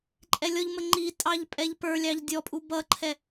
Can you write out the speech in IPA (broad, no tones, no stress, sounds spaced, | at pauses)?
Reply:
ǃʼ ɛ lʲ ɔ ʎ m ə ŋ͡ǃ i tʼ ɑ ʎ pʼ ɛ ʎ p ə˞ lʲ ɑ ʎ dʲ ɔ pʼ u b ʌ ǃʰ ɛ